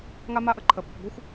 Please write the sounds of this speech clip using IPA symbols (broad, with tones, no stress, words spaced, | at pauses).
ŋa˥ma˥ʔə˥ǃʰə˨ pɪ˨p ɡʷe˥xʷ